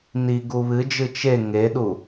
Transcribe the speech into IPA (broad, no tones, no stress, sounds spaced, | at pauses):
n i ɡ u β ɨ d͡ʒ ɨ t͡ʃ e ŋ e ɗ u